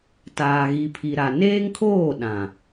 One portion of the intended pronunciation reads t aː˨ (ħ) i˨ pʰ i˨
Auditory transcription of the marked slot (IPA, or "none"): ɣ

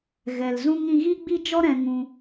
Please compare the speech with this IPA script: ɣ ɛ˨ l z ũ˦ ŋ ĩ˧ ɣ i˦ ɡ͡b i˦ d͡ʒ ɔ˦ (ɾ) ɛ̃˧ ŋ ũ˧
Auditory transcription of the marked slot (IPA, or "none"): ɾ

